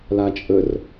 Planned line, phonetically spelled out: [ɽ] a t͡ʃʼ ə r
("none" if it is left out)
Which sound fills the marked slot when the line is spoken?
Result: l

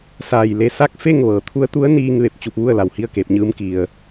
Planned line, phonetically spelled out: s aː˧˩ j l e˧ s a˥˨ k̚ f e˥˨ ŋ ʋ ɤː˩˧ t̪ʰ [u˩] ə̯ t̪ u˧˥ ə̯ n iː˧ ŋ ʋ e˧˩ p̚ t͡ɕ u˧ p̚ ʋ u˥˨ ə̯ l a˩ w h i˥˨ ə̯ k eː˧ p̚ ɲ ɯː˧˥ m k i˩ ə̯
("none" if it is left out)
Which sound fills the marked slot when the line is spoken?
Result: u˧˥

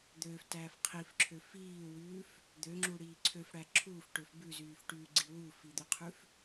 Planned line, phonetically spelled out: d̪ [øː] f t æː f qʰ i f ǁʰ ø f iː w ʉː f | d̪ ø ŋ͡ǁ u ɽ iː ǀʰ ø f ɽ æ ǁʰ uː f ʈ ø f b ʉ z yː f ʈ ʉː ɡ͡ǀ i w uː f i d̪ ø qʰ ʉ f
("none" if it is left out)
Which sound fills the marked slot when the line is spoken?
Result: øː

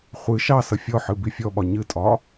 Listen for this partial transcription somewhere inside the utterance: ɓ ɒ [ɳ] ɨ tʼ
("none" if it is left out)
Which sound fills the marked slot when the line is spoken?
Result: ɲ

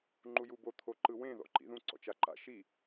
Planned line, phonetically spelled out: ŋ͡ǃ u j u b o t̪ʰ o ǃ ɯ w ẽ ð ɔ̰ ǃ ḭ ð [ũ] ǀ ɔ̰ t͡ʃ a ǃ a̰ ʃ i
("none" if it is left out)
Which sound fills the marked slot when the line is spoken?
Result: ũ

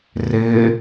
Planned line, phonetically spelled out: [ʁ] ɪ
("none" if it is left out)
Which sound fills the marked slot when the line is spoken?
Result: r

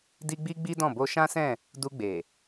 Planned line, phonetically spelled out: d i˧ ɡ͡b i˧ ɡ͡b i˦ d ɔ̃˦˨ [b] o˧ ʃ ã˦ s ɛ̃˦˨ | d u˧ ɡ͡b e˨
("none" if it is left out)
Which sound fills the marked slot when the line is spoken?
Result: b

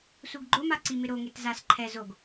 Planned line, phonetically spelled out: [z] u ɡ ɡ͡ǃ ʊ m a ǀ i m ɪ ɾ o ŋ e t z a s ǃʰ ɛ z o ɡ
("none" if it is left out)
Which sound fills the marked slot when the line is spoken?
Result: s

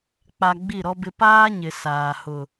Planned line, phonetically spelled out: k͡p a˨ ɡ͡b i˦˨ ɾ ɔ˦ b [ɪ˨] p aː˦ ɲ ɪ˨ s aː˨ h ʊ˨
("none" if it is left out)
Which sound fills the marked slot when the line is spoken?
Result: ɪ˦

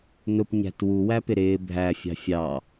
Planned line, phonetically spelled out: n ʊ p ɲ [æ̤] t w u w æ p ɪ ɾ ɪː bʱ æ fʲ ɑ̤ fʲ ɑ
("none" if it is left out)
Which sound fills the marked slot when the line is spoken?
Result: æ̤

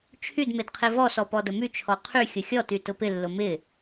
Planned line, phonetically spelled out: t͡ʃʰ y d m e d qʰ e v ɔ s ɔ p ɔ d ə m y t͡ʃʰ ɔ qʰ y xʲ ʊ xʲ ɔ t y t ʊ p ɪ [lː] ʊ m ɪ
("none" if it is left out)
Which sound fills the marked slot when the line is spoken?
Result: lː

